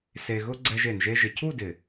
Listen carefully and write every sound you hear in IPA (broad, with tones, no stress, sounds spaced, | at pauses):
s e˧ ɣ ʊ˦ ɡ͡ǀ ɛ˧ ʒ e˨ n ʒ e˧ ʒ ɪ˨ cʰ u˦˨ d ɪ˨